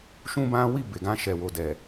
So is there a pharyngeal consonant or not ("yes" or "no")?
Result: no